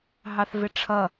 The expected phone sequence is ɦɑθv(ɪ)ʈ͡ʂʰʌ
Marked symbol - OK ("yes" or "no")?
yes